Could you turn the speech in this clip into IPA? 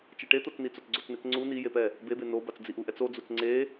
t͡ʃ ɛ ʈ e t̪ o t͡s n i t͡s o t͡s ɡ͡ǀ o t͡s n e t͡s ŋ͡ǀ u n i j e p ɛ | b e b e n o b a t͡s d͡z i ʔ u ʔ ɛ t͡s o d͡z u t͡s ŋ͡ǀ e

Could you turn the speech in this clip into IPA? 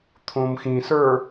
t̪ʰ õ m x ĩ s ə˞

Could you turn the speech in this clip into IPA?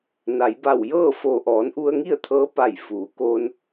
n a˩˧ j b a˧˩ w j ɤː˥˨ f oː˧˩ ʔ ɔː˩˧ n ʔ u˧ ə̯ ŋ i˥˨ ə̯ t̪ʰ ɤː˧˥ p a˧˩ j f uː˩˧ k oː˧ n

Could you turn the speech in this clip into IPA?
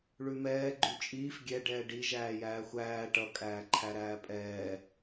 ɭ ʉ m ɛː ɡ͡ǃ ʉ t͡ʃʼ iː f ɡʲ ɛ ɖ ɛː ɖ i ʒ æː j æː xʷ æː ʈ ʌ kʼ æː ǃʰ æ ɾ æː pʼ ɛː

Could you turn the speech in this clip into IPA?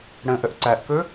ɽ ə̃ ʔ ə ʔ ǀ æ ʔ k ɵ

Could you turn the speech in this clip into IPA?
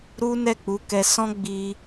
ɾ u˦ n ɛ˦˨ k͡p u˨˦ k ɛ˧ s ɔ̃˦ ɡ͡b i˧

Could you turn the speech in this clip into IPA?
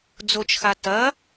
d͡z o t͡ʃ x a t ɐ

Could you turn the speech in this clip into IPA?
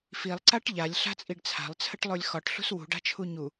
f i lˠ ǀ a ʈ ʎ a lʲ ɬ a̤ t͡sʼ i ɖ t͡sʰ a̤ lˠ t͡sʰ ə ʈ lˠ o lʲ x ɒ ʈ ɬ ṳ s w ṳ ɖ a̤ t͡ʃʰ u ɲ u

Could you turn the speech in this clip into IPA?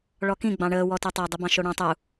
ɭ ɔ k ĩ ɡ͡b ɑ̃ ɳ əː w ɔ t œ tˤ ɑ dˤ i b ɑ̃ ʃ o ɽ ɑ̃ tˤ u

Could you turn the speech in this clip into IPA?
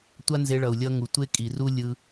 tʷ a˦ n z e˧ ɭ ʌ˨ u̯ lʲ ʌ˧ ŋ u˨ tʷ e˦ kʼ i˨ r u˦ lʲ ɯ˧

